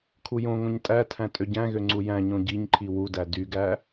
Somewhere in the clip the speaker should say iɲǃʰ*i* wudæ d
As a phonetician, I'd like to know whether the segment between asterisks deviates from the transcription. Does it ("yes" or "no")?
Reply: no